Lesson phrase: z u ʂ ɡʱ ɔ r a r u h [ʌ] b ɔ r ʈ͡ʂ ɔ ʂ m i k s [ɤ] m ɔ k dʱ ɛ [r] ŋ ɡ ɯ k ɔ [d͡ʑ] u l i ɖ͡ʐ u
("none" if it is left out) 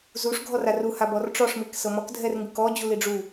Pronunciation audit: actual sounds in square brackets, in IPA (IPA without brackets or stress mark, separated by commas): a, ɤ, r, d͡ʑ